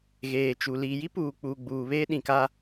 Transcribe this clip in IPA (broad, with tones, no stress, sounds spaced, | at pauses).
ɣ eː˨ t͡ʃ u˨ l iː˨ j i˦ p uː˨ k͡p uː˨ ɡ͡b uː˨ β eː˦ ɗ ĩ˨ k a˦